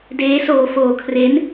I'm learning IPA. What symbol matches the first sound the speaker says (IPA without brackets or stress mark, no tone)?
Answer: d